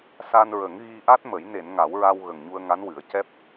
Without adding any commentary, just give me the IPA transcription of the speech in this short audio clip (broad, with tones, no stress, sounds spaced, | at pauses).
s a˧ n ɹ ə˨˩˦ ŋ ɣ i˧ ʔ a˦˥ t̚ m ə˨˩˦ j n e˨˩˨ n ŋ a˨˩˦ w ɹ a˧ w ɣ ə˨˩ ŋ ɲ u˧ ə̯ ŋ a˧˥ n w ɨ˨˩˦ ə̯ c ɛ˦˥ p̚